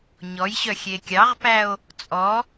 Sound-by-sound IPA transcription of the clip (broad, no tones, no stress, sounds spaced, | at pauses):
ɲ ɔ j ɕ œ xʲ e kʲ ɑ ʁ p æ o̯ | t͡sʼ ɔ